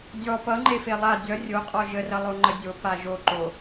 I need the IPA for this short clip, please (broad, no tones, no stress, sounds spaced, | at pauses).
dʲ ɔ p ʌ ŋ͡ǃ e f e lˠ a dʲ ʌ rʲ o qʼ ɔ ʒ ə r ʌ lˠ o ŋ͡ǃ ə dʲ o p a ʒ o ǃ o